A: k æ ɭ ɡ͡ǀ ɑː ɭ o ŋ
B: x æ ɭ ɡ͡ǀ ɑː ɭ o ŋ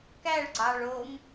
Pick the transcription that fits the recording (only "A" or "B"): A